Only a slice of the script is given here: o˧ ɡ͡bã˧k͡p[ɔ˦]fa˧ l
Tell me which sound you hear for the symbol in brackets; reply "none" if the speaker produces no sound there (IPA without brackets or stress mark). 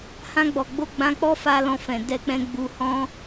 ɔ˦